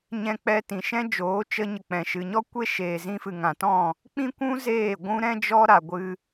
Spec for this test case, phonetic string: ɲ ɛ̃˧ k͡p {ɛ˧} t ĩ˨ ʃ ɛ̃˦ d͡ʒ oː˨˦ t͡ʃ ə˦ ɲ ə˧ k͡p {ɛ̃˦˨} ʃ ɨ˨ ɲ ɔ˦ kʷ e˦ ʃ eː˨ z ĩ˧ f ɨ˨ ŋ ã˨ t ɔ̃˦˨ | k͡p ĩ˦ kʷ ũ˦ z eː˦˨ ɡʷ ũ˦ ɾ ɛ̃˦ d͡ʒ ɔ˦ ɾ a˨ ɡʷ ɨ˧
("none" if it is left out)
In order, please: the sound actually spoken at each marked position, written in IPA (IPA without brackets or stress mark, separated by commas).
ɛ˧, ɛ̃˨